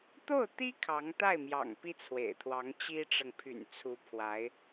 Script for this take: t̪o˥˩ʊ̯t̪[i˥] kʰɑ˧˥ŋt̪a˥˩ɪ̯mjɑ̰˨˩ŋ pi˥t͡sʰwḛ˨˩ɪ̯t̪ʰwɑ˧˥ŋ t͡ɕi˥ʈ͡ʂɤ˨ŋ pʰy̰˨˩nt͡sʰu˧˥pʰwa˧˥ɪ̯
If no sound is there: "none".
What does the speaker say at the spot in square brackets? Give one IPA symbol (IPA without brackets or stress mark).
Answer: i˥